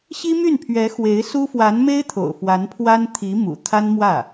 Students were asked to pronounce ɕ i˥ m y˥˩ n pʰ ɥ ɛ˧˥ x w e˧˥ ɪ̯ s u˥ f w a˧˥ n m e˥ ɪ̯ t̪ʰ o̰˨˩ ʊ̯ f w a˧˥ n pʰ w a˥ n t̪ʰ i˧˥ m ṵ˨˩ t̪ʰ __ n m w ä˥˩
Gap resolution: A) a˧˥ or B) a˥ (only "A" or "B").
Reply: B